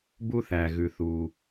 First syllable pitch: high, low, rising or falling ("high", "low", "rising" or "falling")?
high